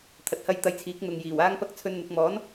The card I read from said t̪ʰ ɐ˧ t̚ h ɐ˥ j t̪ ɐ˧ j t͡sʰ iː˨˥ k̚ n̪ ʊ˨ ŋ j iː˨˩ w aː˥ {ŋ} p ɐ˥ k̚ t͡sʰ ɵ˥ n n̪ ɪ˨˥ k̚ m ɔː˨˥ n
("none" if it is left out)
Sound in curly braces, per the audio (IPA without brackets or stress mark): ŋ